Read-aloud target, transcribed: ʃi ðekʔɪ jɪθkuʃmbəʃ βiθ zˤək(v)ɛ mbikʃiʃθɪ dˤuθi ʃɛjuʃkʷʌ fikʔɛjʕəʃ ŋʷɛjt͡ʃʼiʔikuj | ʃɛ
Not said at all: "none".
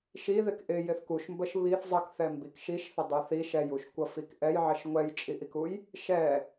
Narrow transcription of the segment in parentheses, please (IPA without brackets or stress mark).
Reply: θ